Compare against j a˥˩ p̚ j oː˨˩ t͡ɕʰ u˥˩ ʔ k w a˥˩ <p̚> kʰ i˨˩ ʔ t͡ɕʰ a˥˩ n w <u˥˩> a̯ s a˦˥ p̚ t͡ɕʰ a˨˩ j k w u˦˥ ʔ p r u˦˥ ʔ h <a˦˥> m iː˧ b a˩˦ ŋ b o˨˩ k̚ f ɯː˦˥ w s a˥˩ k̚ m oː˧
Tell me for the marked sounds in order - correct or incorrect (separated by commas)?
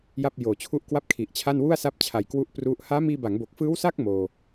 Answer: correct, correct, incorrect